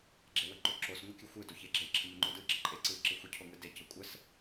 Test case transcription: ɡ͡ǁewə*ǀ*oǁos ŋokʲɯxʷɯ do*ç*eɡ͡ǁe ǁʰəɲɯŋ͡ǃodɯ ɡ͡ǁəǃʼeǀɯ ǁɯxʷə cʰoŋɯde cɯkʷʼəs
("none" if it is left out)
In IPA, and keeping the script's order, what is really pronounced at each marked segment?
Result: ǃ, ç

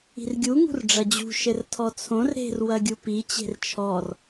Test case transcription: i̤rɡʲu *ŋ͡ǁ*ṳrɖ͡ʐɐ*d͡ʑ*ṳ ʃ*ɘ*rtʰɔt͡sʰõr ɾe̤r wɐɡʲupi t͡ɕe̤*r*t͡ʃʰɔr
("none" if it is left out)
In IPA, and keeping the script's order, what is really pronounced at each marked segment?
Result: ŋ, d͡ʑ, ɘ, r

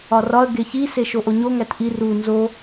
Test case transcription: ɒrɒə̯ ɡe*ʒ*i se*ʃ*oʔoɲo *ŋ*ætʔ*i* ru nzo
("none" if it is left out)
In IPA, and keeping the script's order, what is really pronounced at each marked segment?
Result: ç, ʃ, ŋ, i

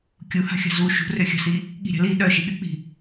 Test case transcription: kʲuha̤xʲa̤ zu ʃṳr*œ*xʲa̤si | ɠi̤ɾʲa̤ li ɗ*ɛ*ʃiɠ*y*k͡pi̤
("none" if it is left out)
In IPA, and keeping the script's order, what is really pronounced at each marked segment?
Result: ø, œ, y

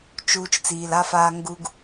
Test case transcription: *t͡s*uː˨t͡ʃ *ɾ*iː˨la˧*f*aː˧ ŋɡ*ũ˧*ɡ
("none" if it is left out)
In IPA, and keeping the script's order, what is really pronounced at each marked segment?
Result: t͡ʃ, t͡s, f, u˧

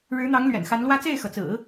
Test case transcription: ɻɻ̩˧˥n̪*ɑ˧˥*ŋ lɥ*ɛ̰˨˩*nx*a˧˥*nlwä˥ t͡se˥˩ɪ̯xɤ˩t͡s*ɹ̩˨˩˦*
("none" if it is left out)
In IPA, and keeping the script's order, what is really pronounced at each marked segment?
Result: ɑ˧˥, ɛ̰˨˩, a˧˥, ɹ̩˨˩˦

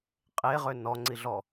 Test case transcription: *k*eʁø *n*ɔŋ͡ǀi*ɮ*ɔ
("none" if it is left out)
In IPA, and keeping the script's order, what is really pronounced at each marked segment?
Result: qʼ, n, ɮ

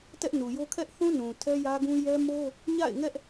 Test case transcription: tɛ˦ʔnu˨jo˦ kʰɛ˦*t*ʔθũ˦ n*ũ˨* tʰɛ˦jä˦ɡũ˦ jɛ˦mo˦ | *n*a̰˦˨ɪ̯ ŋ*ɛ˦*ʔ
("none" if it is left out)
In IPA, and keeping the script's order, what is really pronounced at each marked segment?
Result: none, ũ˨, ɲ, ɛ˦

